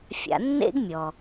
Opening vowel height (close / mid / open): open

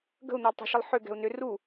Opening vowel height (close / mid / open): mid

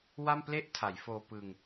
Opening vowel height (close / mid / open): open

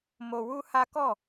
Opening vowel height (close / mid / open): mid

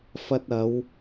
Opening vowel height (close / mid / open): open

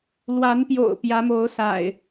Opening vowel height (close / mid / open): open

